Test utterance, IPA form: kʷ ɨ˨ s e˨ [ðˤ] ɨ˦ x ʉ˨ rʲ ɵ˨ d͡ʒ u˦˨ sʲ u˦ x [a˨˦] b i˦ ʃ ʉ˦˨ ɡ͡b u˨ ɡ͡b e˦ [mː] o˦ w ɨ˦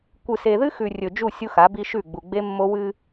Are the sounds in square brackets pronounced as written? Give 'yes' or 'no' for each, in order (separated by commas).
no, yes, yes